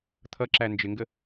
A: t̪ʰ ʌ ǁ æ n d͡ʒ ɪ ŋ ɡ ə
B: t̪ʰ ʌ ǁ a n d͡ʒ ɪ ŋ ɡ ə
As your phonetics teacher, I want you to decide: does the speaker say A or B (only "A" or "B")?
A